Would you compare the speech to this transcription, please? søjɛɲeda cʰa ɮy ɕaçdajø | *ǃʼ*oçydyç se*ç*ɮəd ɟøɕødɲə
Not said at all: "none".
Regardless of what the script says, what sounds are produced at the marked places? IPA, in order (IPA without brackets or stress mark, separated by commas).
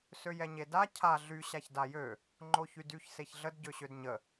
ŋ͡ǃ, ç